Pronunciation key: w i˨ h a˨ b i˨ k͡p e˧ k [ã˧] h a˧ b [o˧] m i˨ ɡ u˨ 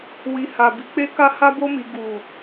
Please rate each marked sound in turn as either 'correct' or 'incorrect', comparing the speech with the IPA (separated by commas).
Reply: incorrect, correct